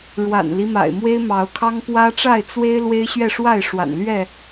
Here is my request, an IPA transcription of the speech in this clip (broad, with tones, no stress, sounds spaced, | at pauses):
ɻ w a̰˨˩ n l i˦ m a̰˨˩ ɪ̯ m w e˦ ɪ̯ m ɑ˨˦ ʊ̯ kʰ ɑ˦ ŋ p w ä˦ ʈ͡ʂ a˥˨ ɪ̯ t͡s w e˦ ɪ̯ l w e˦ ɪ̯ ɕ ɥ ɛ˥˨ ʂ w a˥˨ ɪ̯ ʂ w a̰˨˩ n l ɥ ɛ˥˨